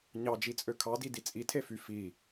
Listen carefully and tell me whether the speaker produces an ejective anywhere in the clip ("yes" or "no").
yes